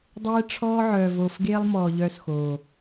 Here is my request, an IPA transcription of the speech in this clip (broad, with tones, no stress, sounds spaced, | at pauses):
dˤ ɛː˦ ʈ͡ʂʰ ɔː˦ ʕ œː˨ v oː˨ f ɡ eː˦ lˠ m ɔː˨ ʎ œː˦ s x oː˨